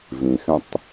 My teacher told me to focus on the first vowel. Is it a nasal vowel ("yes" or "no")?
yes